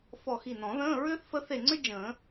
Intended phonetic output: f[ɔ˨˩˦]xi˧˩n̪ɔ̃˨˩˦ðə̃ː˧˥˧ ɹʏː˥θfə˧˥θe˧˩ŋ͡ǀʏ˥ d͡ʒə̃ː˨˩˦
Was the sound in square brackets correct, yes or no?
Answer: no